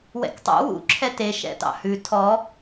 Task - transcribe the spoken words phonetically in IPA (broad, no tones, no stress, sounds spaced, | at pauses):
w ɛ̰ k tˤ ṵ w ṵ ǁʰ ɛ t e ʃ ɛ̰ t ɑ̰ h ʉ tʰ ɔ